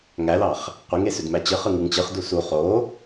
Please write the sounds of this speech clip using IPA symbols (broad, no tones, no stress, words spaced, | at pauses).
ŋælɑχ | qʷiŋesødmæ t͡ɕɯχɯ ŋɯŋt͡ɕɯχdu su χo